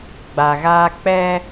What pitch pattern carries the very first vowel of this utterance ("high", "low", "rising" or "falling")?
low